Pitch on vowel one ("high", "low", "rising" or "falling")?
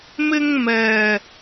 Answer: high